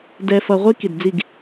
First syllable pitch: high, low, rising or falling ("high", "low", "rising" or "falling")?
low